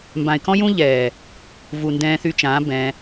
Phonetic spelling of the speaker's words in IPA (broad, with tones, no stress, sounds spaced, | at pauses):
m b ã˨ ɪ̯ k ɔ̃˦ j ũː˦ ʎ ɛː˨ | v u˨ n d ɛ̃ː˧ θ y˧ t͡ʃ ãː˨˦ b ɛ̃˧